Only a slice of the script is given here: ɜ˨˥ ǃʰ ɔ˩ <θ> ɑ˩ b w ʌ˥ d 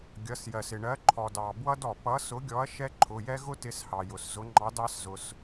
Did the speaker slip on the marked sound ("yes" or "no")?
yes